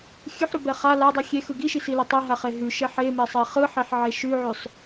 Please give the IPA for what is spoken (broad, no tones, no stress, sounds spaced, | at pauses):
xʲ ʉ ħ ɾ ʉ b ɛ χ a l a dˤ i xʲ e x ɯ ɡ i ʃ i s i l a tˤ e ɦ a χ e ɦ ʉ ʃ ɛ ħ e m ɛ sˤ ɛ χ ɯ ħ e ħ ʕ e ʃ ʉ ʕ ʉ sˤ